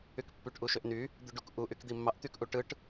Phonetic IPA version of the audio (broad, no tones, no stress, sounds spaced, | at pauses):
y k pː y ʈ ʔ u ʃ ø ʔ n y | d̪ y ɖ u k ʔ u ʔ y k d̪ i mː ɑ ʔ t̪ y k ʔ u ʈ ɯ ʈ